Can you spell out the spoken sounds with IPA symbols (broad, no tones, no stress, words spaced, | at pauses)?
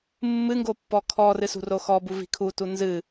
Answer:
mːɨŋɡo pːɔkʰɔrɨ sṳroxɔbu vi̤kʰutu nzɨ